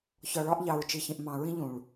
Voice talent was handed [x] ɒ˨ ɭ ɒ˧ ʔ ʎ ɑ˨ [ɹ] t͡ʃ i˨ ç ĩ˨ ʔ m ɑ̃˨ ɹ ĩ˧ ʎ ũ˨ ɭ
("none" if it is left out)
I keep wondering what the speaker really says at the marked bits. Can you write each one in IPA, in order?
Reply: ç, ɹ

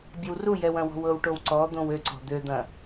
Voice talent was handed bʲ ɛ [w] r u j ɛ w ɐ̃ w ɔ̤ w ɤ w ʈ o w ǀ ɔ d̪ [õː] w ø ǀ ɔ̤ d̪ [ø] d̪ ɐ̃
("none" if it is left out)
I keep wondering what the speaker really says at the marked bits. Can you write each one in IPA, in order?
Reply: w, õ, ø

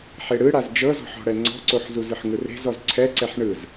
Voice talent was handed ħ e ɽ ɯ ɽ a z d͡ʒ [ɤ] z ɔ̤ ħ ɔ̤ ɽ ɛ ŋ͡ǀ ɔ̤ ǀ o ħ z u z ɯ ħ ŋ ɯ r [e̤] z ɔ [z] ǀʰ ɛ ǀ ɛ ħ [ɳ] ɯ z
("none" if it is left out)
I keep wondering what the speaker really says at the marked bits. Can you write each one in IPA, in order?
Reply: ɤ, e̤, z, ɳ

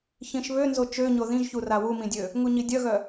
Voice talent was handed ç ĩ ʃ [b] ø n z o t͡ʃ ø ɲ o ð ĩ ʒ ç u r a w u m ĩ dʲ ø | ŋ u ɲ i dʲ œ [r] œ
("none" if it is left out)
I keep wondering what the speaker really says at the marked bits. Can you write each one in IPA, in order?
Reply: β, ɣ

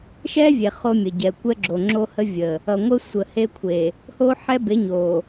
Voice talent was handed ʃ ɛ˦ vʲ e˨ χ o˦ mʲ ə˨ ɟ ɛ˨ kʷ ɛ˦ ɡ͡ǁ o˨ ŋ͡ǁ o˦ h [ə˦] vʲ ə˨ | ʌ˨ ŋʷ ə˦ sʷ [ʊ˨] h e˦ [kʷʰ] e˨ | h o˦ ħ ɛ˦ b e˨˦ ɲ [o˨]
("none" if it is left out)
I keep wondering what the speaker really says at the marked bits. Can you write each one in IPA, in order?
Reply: ə˦, ə˨, kʷʰ, o˨

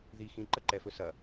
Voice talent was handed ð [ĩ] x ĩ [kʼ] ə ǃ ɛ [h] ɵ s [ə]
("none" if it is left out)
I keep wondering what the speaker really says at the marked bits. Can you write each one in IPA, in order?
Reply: i, ǃ, f, ɐ

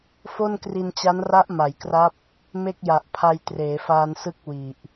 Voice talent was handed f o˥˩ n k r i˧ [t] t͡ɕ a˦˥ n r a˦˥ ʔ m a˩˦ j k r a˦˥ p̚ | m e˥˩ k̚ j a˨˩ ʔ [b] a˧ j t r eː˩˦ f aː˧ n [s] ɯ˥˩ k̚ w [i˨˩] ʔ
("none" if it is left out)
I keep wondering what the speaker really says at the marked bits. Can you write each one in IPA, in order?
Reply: n, pʰ, s, i˨˩

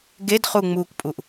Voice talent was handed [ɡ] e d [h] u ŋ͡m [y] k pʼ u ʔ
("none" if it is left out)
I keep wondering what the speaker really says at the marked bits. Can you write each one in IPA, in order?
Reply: ɡ, χ, u

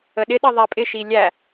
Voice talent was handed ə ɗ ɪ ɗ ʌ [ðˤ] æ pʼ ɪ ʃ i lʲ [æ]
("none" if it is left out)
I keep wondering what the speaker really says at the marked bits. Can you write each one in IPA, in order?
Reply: ðˤ, æ

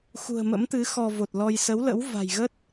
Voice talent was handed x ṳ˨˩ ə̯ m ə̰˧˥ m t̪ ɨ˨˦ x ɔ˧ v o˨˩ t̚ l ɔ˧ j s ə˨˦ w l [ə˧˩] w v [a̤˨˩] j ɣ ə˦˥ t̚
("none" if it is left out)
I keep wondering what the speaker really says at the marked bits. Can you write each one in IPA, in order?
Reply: ə̰˧˥, a̤˨˩

